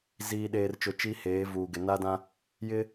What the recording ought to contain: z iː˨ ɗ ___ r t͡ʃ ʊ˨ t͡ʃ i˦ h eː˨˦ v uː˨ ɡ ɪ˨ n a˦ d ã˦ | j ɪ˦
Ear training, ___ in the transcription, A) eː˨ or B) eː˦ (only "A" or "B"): A